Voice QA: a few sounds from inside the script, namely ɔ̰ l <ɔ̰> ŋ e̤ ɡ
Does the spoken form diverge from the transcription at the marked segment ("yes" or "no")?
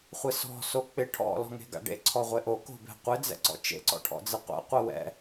yes